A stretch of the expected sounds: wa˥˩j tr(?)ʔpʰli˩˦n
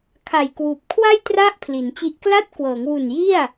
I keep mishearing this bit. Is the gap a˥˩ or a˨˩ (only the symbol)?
a˥˩